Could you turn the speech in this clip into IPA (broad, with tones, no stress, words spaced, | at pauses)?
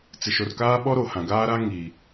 t͡sɪ˨ʃo˨rkaː˦ɓɔ˦ ɾo˨hã˨ɡaː˦ɾa˦ ŋiː˨